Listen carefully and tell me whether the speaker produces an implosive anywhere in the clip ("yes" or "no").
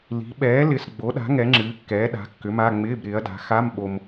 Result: yes